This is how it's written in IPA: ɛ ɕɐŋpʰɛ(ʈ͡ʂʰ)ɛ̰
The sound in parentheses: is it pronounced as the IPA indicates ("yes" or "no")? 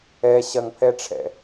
yes